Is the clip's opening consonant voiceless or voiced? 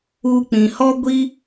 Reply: voiceless